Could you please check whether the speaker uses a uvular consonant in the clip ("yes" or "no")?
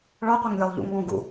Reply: yes